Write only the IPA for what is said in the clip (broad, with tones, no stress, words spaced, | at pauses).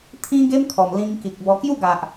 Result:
t̪ʰĩ˦ɡe˦mkʰɔ˨˩m lĩ˧ŋki˨k̚bɔ˧ kju˥˧ɡa˨ʔ